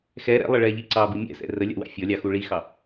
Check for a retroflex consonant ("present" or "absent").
present